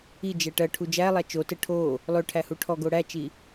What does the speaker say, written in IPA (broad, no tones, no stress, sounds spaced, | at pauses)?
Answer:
i d͡ʒ ɛ ʈ ɜ ʈʰ u d͡ʒ æ lˠ æ t͡ʃ o t ɘ ʈʰ o | lˠ ø ʈʰ æ h u ʈʰ ɔ ɡ o ɽ æ t͡ʃ i